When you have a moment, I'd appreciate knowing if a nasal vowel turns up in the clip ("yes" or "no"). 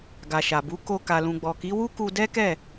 yes